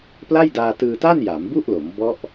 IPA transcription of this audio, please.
p l a˥˩ j d aː˧ t ɯː˧ t a˥˩ n j a˩˦ m b u˥˩ ʔ l o˩˦ m b ɔ˦˥ ʔ

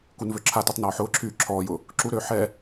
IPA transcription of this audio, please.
k u n v ø ǁʰ a t u tˤ n ɔː ħ ʊː ǁʰ yː ǁʰ ɔː j ʊ | ǁ u ɾ øː ħ ɛ

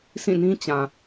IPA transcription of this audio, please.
s ĩ˦˨ n ĩ˦ t͡ɕ ã˨

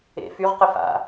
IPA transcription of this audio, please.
ḛ f y ʁ q ɘ f a̰

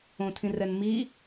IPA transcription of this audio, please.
õ tʰ ĩ r ɛ n m i

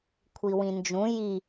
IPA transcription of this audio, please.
kʷʰ i w ĩ n d͡ʒ ũ j i

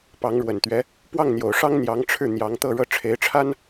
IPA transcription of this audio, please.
p ɑ˧˥ ŋ ɻ w ə˨˩ n t̪ ɥ ɛ˧˥ | p w ɑ˥˩ ŋ n̪ j o˨˩ ʊ̯ ʂ ɑ˥ ŋ n̪ j ɑ˧˥ ŋ ʈ͡ʂʰ ɻ̩˥˩ n̪ j ɑ˧˥ ŋ t̪ ɤ˥˧ ɻ ɤ˥˩ ʈ͡ʂʰ e˧˥ ɪ̯ ʈ͡ʂʰ a˥ n

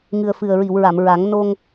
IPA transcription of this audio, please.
ŋ ɨ˨˩ ə̯ f ɨ˨˩ ə̯ ɹ i˨˩˨ w ɹ a˨˩˨ m ɹ a˨˩˦ ŋ n o˧ ŋ

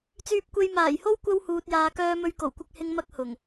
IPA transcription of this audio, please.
t͡s yː˧ p̚ kʷ e˧ j m aː˨˩ j h o˥ w kʷ ɐ˧ w h uː˨ t̚ j aː˨ k œː˧ m ɵ˧ ɥ k o˨˩ w kʷ ɪ˧ k̚ h ɪ˧ ŋ m ɐ˥ k̚ h ʊ˨˩ ŋ

